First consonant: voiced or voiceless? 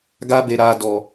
voiced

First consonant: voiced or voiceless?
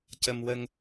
voiceless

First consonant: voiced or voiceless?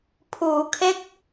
voiceless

